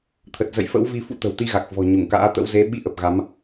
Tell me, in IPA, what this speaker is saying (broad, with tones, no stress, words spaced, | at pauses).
t̪ʰə˨˩t̚zə̰˧˨jfə̰˧˥wvi˧ fṵ˧˥t̪ə̤˨˩wt̪i˧ ɣa˨˩k̚ vɔ̤˨˩ɲu˧˩ŋka̰ː˧˥t̪ə̰˧˥w ze˨˦ ɓi˧ʔə˨˩p̚ ɣa˨˦m